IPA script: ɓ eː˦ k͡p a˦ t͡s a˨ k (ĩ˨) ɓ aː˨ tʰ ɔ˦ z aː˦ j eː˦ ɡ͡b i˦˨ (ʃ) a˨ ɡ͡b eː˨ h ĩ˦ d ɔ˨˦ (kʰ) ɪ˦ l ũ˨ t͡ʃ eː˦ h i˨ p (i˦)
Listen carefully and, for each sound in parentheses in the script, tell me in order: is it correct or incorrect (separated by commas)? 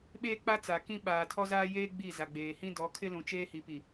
incorrect, incorrect, correct, incorrect